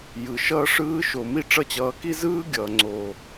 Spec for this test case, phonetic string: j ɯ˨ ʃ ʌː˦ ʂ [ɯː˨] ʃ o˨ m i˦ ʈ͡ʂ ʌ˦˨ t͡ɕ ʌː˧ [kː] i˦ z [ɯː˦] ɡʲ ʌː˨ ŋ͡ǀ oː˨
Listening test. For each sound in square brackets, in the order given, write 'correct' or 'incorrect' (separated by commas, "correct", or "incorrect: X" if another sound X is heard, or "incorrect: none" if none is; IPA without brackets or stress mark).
incorrect: ɯː˦, incorrect: k, correct